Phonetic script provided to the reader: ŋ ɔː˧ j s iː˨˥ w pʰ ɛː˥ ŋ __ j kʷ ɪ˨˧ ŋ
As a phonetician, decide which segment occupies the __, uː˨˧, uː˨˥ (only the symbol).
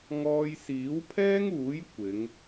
uː˨˥